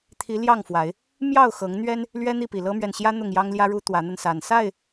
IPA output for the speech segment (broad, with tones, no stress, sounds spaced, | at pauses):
t̪ʰ i˨˦ l j ɑ˥˨ ŋ f w a˨˦ ɪ̯ | m j ɑ˥˨ ʊ̯ x ɤ˨˦ ŋ n̪ ɥ ɛ˦ n | l ɥ ɛ˦ n̪ i˥˨ p i˨˩ l ɤ˦ m ɥ ɛ˨ n ɕ j ä˦ n̪ ʊ˥˨ ŋ j ɑ˦ ŋ l j ä˦ ɻ u˦ t̪ w ä˨˦ n̪ ə˧ n s a˨˩ n s a˥˨ ɪ̯